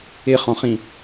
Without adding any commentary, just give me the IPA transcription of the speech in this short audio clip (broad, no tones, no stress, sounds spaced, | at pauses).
ɪ χ ɔ̃ χ ĩ